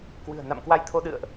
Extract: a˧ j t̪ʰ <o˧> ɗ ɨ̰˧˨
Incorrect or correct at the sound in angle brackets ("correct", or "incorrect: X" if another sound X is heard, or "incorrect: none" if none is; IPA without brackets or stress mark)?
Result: correct